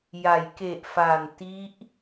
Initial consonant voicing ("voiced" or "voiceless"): voiced